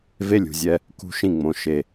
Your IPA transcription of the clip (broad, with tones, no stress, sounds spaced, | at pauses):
v e˦ lʲ ṳ˨ zʲ ɛ˦ | k ṳ˦ ʃ ĩ˦˨ ŋ͡m õ˨ ʃ e˨